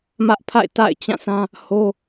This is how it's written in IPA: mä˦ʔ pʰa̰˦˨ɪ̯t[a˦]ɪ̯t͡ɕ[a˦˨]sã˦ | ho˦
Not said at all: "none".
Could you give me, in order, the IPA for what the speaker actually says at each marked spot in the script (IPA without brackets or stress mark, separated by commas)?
a̰˦˨, ã˦˨